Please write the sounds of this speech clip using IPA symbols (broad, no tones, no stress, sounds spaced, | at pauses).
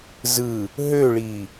z ɯ | ɦ ø ɭ i